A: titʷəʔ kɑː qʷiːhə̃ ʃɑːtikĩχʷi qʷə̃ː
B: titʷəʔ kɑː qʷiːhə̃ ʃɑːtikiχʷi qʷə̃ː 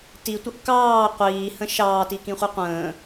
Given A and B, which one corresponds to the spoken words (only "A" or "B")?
A